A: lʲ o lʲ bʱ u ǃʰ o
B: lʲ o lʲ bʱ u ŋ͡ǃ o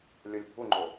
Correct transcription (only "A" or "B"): B